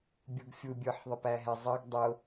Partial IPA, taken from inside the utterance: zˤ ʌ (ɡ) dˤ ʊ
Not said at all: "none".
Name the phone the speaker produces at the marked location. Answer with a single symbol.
ɡ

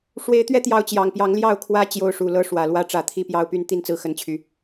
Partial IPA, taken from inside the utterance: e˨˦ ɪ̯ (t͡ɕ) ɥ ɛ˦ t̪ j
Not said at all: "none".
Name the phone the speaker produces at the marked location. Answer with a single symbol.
t̪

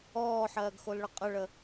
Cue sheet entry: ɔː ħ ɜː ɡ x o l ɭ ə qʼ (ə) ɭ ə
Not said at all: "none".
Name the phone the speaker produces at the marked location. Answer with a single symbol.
ə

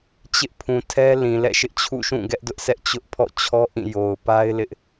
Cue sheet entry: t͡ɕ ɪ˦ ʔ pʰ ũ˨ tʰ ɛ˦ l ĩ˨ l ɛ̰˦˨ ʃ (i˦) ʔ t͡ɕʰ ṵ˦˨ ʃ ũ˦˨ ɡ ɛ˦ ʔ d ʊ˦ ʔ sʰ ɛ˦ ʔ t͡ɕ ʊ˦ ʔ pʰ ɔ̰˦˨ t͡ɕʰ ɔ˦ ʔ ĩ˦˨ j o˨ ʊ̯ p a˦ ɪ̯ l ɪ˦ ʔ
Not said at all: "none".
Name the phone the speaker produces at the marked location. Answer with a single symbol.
ɪ˦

